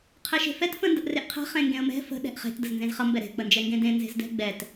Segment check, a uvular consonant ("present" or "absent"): present